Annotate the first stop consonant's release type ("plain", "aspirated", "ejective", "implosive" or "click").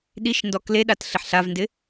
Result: implosive